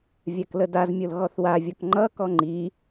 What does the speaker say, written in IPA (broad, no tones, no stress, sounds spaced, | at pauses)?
vʲ a k l ə d a z mʲ o l ɣ ɔ θ w a vʲ ɔ k ŋ͡ǃ ʌ k ɔ ŋ͡ǃ i